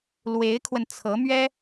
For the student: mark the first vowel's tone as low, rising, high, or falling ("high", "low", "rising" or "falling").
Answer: rising